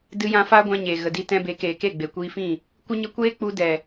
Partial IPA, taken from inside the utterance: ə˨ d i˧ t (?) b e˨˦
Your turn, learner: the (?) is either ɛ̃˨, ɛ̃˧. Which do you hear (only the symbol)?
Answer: ɛ̃˧